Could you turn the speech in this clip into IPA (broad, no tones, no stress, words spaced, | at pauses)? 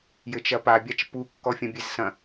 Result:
jɘt͡ʃɐpa bʲat͡ʃpu kːɔfʲɐ̃bʲezsɐ̃